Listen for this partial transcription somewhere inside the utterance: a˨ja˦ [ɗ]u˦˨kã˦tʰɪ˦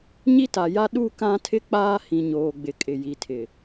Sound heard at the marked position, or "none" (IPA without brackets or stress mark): ɗ